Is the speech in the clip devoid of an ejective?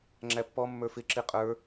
no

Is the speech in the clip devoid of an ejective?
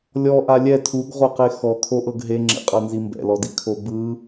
no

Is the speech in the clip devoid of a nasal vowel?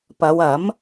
yes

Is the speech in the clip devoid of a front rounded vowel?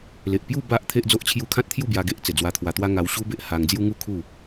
yes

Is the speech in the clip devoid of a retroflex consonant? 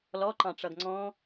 no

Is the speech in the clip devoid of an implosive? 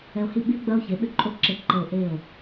no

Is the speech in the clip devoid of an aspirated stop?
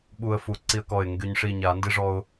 yes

